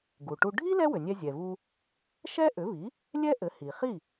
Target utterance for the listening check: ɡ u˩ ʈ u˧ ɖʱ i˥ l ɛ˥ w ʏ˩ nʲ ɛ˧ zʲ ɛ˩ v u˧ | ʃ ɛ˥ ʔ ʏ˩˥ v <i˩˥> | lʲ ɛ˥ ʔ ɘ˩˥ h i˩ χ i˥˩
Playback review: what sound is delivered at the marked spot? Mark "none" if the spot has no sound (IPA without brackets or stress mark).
i˩˥